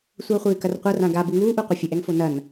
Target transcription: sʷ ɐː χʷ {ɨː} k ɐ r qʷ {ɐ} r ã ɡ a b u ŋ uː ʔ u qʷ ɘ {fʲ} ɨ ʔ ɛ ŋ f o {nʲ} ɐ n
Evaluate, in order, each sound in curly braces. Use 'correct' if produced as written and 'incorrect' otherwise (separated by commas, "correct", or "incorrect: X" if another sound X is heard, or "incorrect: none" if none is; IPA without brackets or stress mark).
correct, correct, correct, incorrect: n